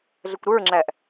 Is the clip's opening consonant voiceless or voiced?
voiced